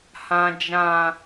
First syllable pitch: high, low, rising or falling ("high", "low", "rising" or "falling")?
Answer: low